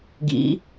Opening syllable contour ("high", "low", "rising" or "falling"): rising